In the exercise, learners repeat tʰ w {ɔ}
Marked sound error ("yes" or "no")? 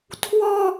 no